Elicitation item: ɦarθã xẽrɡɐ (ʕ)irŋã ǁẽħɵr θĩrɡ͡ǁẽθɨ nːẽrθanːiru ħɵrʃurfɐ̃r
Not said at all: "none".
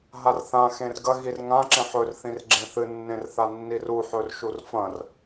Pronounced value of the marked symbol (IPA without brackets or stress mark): ɣ